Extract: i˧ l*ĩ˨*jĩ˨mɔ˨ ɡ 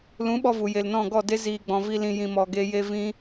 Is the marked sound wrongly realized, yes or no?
no